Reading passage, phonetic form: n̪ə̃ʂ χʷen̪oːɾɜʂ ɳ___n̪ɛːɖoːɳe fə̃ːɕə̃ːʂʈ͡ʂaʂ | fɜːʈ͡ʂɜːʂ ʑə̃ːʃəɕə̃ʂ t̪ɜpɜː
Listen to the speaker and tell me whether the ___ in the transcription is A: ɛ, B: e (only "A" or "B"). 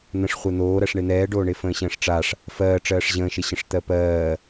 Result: B